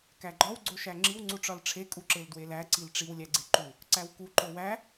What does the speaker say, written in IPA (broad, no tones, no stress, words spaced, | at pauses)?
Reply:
kæɡ͡ǃɒw ɡ͡ǀoʃæŋ͡ǁiw ŋ͡ǀuʈ͡ʂɒlʈ͡ʂʰe kʼuǁeldwelæ ǀilʈ͡ʂiw lʲæɡ͡ǀeǃu | ǀæwku ǃowæ